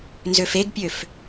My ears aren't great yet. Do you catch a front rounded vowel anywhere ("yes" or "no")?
yes